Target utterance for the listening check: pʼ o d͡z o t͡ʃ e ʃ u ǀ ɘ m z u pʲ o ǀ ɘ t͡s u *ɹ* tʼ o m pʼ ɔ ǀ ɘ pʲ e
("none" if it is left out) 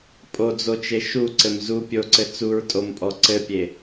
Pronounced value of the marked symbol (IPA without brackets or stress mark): ɹ